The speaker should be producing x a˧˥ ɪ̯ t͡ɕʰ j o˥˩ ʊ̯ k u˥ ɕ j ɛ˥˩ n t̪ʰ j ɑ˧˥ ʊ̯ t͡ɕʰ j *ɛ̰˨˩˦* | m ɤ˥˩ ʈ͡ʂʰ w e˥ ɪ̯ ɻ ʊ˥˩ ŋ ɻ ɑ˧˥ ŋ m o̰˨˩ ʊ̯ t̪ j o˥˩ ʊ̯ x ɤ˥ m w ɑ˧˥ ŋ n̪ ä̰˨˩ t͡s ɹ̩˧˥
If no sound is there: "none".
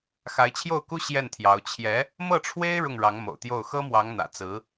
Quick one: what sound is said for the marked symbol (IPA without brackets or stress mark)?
ɛ˧˥